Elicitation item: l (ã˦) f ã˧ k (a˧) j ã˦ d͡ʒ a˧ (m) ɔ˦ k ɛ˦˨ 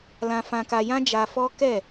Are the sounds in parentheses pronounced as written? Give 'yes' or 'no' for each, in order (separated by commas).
no, yes, no